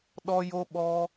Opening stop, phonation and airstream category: implosive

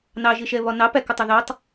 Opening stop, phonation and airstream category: plain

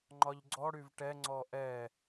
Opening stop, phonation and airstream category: click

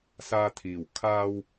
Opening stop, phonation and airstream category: aspirated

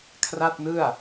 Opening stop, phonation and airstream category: aspirated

